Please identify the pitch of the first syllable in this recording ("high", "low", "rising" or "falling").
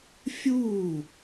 falling